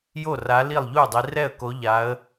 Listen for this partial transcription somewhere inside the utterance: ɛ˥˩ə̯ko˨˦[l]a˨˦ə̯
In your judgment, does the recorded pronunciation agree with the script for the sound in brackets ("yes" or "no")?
no